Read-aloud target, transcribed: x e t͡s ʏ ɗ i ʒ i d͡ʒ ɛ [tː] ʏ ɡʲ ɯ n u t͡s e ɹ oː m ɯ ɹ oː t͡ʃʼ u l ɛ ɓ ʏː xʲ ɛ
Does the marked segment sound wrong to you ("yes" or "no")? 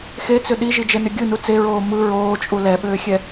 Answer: yes